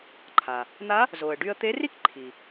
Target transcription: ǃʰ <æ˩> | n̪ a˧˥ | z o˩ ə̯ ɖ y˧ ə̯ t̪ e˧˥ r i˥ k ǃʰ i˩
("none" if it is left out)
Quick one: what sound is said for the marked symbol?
a˩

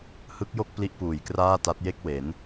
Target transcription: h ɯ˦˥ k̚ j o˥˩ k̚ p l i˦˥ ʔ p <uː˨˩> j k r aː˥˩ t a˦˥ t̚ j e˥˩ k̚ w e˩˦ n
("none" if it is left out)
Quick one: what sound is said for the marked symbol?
uː˨˩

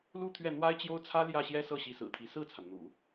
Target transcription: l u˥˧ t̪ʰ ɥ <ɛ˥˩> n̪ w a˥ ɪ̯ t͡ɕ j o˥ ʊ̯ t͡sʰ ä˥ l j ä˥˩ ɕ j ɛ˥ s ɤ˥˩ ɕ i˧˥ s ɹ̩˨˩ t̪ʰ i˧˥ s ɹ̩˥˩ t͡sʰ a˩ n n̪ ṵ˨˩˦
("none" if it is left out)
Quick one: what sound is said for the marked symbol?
ɛ˥˩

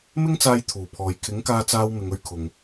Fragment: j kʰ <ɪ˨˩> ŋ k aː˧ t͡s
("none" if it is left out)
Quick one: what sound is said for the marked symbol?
ɪ˨˥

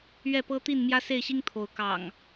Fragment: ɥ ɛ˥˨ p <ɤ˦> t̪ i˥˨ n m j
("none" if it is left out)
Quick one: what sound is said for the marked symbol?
ɤ˦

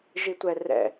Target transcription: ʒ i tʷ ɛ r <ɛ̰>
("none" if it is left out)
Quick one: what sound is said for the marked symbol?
ɛ̰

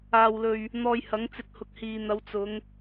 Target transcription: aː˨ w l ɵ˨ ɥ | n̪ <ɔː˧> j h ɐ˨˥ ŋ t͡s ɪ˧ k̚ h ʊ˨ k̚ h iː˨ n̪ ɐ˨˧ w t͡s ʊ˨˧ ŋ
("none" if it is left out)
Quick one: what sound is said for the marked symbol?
ɔː˧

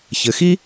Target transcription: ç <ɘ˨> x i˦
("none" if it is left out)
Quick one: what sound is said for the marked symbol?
ɘ˨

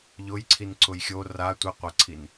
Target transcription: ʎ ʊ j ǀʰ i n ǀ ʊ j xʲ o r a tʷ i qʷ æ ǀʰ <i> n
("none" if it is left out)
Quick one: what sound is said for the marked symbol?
i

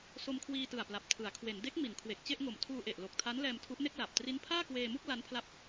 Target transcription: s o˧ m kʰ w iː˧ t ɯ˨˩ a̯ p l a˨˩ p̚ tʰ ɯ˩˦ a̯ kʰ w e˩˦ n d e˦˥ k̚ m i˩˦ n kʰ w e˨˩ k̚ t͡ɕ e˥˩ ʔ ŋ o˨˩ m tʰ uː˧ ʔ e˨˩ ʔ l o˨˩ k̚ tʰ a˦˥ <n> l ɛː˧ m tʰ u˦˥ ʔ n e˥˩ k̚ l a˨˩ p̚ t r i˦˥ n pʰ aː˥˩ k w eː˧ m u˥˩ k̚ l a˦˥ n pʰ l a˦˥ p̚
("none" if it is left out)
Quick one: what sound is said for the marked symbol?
n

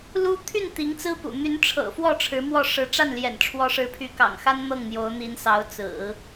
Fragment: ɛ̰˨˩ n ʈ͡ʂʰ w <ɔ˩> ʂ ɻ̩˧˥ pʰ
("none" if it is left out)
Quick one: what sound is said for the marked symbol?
ɔ˧˥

